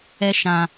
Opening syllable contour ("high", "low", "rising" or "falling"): high